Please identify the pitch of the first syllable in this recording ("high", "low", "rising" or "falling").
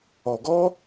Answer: low